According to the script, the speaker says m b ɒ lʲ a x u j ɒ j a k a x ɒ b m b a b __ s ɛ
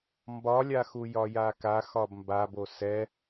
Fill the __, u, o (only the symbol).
o